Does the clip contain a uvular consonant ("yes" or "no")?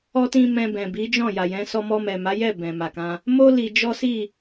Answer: no